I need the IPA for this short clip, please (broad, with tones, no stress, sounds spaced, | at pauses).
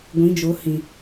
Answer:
ɡʷ ĩ˨˦ d͡ʒ o˨˦ h ĩ˨